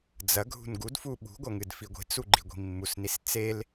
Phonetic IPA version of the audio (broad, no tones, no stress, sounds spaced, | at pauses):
d͡z ɐ ɡʱ ṳ n ɡ u d f u ɓ ṳ ɡʷ ɐ ŋ ɨ d f i ɡʷ i̤ t͡s u ɡ͡ǃ i ɡʷ i̤ mː u s n i s t͡s e l